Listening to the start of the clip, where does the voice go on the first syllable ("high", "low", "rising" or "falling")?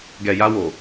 low